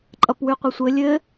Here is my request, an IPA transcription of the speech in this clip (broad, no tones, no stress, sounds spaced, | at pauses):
ǃʼ ʌ p w ʉ qʷ ʌ sʷ ɘ lʲ ɘ